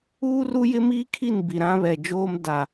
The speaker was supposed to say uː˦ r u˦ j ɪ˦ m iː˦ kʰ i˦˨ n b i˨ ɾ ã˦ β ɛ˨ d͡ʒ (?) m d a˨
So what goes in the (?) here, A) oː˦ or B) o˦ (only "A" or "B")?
A